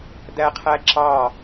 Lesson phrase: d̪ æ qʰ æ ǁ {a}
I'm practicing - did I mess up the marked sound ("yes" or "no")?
yes